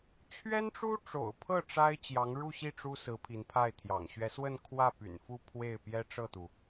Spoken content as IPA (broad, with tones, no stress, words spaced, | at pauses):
t͡ɕʰɥɛ˥nʈ͡ʂu˥ʈ͡ʂo̰˨˩ʊ̯ pʰɤ˥˩ ʈ͡ʂa˥ɪ̯ t͡ɕjɑ˧˥ŋɻu˥˧ɕi˥˩ ʈ͡ʂu˥sɹ̩˧˥ pʰi˧˥npʰa˥˩ɪ̯t̪ʰjɑ̰˨˩ŋ ɕɥɛ˧˥swə˥˧n kʰwä˥˩py̰˨˩n fu˥˧ pʰwe˥˩ɪ̯ pjɛ˥ʈ͡ʂɤ˥˩t̪u˩